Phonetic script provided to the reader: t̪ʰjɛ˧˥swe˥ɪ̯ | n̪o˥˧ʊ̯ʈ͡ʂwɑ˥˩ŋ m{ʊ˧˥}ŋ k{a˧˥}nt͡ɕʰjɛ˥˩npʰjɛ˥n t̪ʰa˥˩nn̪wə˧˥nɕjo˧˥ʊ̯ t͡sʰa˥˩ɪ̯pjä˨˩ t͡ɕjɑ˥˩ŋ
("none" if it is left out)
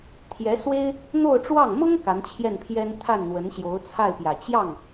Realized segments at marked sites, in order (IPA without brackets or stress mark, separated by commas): ʊ˥, a˧˥